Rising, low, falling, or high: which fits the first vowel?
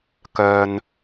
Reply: high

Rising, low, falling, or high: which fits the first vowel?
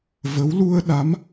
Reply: rising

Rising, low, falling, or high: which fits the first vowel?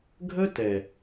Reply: high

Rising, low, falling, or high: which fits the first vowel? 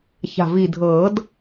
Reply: low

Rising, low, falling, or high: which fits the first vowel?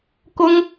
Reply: high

